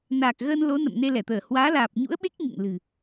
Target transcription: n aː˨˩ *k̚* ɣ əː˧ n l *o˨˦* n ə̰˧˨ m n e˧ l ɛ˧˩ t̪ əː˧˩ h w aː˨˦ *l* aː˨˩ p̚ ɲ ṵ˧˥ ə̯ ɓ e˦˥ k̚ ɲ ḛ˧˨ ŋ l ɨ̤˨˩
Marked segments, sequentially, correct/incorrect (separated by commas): correct, correct, correct